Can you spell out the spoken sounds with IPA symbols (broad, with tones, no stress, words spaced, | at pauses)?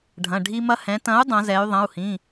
ɖʱɐ̃˩˧˩ɖʱi˦mɐ˦ hɛ̃˩˧tɐ̃˨˥u̯ dˤɐ̃˩˧zɛ˩˧y̯ðˤɐ̃˩˧˩u̯hĩ˩˧˩